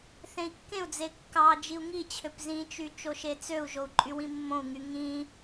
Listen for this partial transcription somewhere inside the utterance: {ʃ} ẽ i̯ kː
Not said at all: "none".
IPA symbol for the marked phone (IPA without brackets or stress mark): θ